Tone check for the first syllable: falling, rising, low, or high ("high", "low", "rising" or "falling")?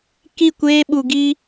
falling